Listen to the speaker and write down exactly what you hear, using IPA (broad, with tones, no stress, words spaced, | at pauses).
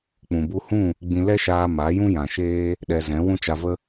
k͡pũ˨bu˧hũ˦˨ | ɡ͡bĩ˧ lɛ˦ʃaː˧ ma˨˦ jũ˦ jã˨ʃeː˦ | ɗɛ˧zɛ̃˨˦ wũ˦t͡ʃa˧və˦